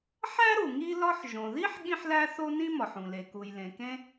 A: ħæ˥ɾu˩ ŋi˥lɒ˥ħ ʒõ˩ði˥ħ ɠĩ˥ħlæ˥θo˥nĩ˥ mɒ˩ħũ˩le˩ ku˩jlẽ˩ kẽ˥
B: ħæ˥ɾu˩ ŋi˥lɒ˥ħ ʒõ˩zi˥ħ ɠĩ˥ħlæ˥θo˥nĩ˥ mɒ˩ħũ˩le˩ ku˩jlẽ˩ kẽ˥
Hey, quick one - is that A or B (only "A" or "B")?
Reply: A